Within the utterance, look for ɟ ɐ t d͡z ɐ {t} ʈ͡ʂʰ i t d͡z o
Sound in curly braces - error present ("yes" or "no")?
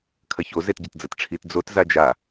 no